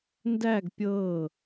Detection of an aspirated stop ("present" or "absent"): absent